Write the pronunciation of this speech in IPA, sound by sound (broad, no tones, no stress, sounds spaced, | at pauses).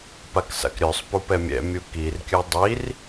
p a k s a̰ k ɾʲ œ sˤ p u p ɛ mʲ ɛ̰ mʲ u k i r kʲ œ dˤ i r